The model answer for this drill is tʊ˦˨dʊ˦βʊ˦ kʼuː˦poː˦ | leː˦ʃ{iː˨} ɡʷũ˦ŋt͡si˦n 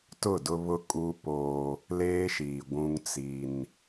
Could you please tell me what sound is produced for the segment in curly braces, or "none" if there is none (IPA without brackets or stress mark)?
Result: iː˨